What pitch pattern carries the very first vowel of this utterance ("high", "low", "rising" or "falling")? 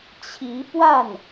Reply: rising